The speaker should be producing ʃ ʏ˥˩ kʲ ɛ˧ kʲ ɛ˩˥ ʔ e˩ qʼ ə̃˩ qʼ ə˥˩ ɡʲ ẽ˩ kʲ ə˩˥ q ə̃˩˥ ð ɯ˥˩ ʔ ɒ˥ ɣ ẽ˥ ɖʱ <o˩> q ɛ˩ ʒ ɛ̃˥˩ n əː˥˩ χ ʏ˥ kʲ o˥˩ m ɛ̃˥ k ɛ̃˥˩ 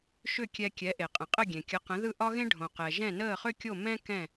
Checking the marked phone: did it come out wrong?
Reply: yes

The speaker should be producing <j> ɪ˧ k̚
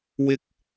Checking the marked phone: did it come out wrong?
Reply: yes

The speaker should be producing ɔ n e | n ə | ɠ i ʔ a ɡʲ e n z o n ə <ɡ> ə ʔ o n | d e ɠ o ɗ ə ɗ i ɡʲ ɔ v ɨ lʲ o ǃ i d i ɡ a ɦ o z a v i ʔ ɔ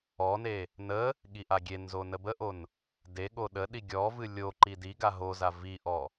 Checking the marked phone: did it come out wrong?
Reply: yes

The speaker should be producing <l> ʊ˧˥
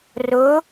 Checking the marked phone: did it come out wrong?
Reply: yes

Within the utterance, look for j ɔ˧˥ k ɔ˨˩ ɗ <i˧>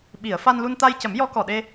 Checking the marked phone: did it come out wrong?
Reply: yes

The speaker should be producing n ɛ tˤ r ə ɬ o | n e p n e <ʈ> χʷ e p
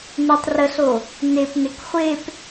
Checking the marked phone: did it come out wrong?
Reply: yes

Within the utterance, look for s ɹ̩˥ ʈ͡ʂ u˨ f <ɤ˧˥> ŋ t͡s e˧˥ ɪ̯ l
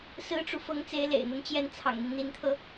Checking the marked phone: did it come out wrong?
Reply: no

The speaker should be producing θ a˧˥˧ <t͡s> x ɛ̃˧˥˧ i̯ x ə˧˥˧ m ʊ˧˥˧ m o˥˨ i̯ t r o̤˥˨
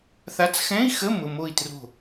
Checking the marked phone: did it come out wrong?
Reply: no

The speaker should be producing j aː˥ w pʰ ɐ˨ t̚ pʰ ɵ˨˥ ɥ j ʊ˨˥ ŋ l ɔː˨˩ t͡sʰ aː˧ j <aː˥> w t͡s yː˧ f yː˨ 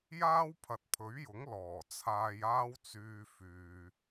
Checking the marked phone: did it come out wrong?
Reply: no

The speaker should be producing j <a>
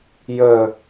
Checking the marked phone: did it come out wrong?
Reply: yes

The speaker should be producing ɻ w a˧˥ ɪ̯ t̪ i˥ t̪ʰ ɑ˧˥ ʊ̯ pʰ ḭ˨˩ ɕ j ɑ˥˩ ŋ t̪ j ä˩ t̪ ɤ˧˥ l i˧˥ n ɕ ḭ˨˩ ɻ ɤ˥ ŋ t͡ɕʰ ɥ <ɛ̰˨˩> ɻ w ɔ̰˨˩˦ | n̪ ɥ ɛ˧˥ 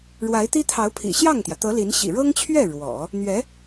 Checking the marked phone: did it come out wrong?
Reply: yes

